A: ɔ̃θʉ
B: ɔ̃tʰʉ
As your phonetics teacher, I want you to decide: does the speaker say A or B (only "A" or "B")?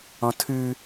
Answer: B